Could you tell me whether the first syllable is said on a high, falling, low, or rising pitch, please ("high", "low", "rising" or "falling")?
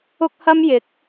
high